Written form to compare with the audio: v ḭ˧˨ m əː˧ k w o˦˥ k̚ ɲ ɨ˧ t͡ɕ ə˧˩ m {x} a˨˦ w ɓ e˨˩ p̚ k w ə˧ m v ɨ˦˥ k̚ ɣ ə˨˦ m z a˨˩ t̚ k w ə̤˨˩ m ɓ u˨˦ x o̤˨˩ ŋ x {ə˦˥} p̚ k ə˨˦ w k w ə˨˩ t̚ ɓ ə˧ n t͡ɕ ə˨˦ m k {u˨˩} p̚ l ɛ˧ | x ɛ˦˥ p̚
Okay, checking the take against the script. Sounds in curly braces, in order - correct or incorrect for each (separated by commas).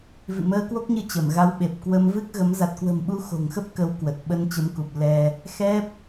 incorrect, correct, correct